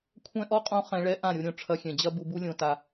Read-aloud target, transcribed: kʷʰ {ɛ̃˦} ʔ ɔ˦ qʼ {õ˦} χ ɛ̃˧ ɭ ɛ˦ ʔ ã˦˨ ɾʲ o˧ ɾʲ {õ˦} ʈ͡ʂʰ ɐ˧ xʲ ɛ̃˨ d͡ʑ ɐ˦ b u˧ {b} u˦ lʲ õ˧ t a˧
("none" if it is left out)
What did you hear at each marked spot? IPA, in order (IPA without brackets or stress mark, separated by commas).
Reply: ɛ̃˦, õ˦, õ˨, b